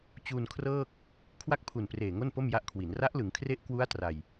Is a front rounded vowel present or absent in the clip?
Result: absent